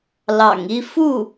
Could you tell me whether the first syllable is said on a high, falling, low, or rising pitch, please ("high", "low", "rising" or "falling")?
low